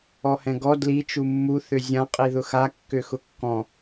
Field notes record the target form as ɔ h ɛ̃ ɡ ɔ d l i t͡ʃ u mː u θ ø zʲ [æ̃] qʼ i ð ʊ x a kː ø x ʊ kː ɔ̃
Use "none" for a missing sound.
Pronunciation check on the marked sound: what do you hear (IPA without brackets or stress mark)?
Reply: ã